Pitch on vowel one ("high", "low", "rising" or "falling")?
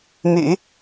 low